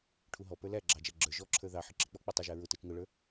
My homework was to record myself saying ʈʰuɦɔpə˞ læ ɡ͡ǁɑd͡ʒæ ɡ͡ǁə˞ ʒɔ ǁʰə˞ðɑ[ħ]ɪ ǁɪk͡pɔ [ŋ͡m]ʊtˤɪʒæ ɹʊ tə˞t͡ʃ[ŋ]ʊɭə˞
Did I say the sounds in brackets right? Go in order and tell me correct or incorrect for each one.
correct, incorrect: k͡p, correct

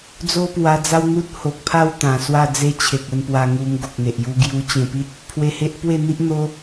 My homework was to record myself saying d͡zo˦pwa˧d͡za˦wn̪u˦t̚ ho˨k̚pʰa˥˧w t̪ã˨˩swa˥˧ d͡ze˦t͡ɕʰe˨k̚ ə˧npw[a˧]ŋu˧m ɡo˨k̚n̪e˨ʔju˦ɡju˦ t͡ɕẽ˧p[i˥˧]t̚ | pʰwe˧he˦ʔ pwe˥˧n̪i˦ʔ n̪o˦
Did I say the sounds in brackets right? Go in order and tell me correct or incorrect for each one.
correct, incorrect: i˦

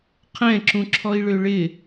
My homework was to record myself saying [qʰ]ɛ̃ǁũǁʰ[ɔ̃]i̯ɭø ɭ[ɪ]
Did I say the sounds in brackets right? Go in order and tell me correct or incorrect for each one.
correct, incorrect: ɔ, correct

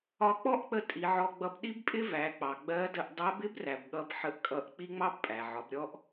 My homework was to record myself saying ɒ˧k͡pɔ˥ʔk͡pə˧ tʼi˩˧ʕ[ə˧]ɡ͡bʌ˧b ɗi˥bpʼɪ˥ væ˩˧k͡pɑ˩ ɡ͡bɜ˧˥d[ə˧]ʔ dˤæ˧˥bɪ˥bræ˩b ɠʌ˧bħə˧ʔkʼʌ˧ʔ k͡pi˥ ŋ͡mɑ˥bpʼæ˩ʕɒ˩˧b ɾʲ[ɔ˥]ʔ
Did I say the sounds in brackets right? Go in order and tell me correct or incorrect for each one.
incorrect: ɔ˧, correct, correct

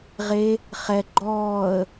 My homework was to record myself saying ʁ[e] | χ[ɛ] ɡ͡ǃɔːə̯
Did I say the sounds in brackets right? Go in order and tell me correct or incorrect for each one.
correct, correct

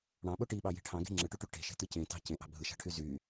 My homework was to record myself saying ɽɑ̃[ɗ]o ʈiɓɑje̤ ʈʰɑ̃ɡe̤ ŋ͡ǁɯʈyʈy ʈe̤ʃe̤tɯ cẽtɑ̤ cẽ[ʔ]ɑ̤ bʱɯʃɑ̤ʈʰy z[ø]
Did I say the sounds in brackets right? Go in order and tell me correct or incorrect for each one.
incorrect: ɓ, correct, incorrect: y

